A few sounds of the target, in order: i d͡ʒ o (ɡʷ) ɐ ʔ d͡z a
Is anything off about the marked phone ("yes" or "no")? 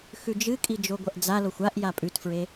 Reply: no